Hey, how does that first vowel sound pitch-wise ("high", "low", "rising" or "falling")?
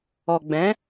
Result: low